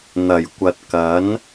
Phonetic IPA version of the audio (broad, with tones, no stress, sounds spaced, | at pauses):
n̪ ɐ˨˩ j kʷ ɐ˨ t̚ k ɐ˨˥ n